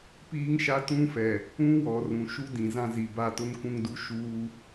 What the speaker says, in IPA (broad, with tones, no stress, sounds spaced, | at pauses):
p iː˦ ŋ ʃ a˦ t ũ˦ f ɛ˨ | ũ˦ w ɔ˨ r ũ˨ ʃ u˦ d ĩ˨ z ã˦ z i˨ b a˦˨ t ʊ˦ n k ũ˦ ŋ d u˦ ʃ uː˦